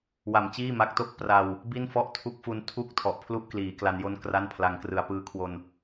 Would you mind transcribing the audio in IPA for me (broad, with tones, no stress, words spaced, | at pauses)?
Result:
wa˨˩mt͡ɕiː˥˩ma˦˥k̚to˥˩k̚ pra˧w | bi˥˩nfɔ˥˩ʔ tʰu˦˥k̚fu˧n tʰu˥˩k̚ tʰɔ˨˩ʔpʰlu˥˩ʔkliː˩˦ kla˧njo˥˩n kra˥˩n pʰla˧ŋ krɯ˩˦a̯pɯː˦˥kʰwo˧n